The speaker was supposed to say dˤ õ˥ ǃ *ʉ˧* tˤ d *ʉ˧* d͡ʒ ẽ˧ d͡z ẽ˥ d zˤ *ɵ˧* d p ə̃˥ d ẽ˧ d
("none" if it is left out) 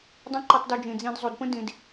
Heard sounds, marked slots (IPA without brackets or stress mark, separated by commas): ʉ˧, ʉ˧, o˧